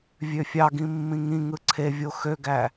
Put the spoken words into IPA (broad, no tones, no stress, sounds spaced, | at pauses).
vʲ ø fʲ ɑ ɡ ĩ mː ĩ ŋ ĩ ŋ ɯ ǀʰ e vʲ o x ø ɡ æ